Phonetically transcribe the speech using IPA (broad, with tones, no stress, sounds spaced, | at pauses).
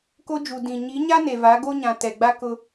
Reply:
k o˦ d͡ʒ u˨ d ĩ˨ ɲ i˨˦ ɲ a˦ n e˨ v a˨˦ ɡ o˦ ɲ ã˨ t ɛ˨ ɡ͡b a˦ k ʊ˦